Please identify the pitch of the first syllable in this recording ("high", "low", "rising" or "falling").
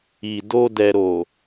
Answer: low